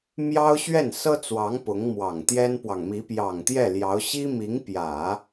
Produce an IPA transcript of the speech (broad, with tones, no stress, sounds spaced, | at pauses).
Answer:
m j ɑ˥ ʊ̯ ɕ ɥ ɛ˥˩ n s ɤ˥ t͡s w ɑ˧˥ ŋ p ʊ˧˥ ŋ m w ɑ˨˩ ŋ t̪ j ɛ˥ n p w ɑ˨ ŋ m i˧˥ p j ɑ˨˩ ŋ t̪ j ɛ˥˩ l j ɑ˧˥ ʊ̯ ɕ i˥ m i˧˥ ŋ p j ä˨˩˦